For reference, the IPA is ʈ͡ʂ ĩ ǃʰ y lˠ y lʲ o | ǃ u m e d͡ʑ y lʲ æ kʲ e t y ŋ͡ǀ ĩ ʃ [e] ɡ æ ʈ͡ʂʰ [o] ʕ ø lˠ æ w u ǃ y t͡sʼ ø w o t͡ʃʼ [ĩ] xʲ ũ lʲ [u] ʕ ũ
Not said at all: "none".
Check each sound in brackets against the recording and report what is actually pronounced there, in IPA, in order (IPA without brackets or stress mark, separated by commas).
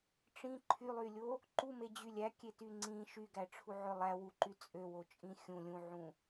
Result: y, u, ĩ, ũ